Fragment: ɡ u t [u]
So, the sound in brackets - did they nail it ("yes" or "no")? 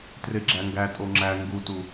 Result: yes